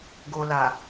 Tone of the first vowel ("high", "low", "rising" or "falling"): low